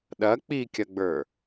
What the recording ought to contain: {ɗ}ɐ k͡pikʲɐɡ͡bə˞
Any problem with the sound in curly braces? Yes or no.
no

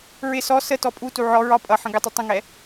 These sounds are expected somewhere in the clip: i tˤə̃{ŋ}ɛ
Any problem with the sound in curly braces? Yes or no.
no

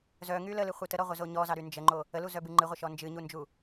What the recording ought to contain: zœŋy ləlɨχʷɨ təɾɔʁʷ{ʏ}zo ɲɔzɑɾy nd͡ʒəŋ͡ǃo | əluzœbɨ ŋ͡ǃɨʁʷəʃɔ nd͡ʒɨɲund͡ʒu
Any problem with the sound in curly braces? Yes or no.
yes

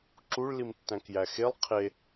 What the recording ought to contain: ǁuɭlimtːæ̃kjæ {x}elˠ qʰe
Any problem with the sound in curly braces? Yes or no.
no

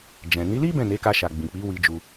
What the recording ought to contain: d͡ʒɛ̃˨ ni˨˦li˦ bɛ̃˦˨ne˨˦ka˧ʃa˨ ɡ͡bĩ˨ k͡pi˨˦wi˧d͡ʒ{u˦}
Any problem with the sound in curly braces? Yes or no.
yes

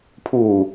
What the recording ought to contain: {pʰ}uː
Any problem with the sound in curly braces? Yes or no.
no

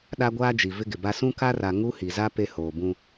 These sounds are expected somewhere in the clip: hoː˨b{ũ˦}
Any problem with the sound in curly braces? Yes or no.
no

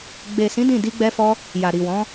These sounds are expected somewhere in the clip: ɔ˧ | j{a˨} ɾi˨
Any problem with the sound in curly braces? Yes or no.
no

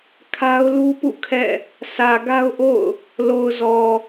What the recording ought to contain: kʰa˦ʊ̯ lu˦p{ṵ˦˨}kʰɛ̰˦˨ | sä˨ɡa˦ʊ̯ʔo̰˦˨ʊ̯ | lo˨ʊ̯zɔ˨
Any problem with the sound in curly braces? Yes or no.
no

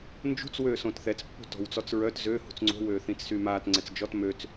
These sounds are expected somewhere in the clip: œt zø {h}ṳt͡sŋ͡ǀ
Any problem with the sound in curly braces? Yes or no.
no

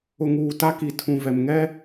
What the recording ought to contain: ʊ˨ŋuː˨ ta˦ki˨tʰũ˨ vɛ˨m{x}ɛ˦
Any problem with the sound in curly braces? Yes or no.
yes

